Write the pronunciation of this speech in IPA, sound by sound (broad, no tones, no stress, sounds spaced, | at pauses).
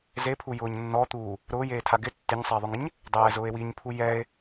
z e pʰ u j ʊː ɲ nː ɔ t̪ uː | ɾ ʊː j eː tʰ a ɡ ɪ tː ɪ ɲ sˤ eː ðˤ ʊ ŋ ɪ ɲ | dˤ ɛː z ʊː e̯ w i ɲ pʰ u j ɛ e̯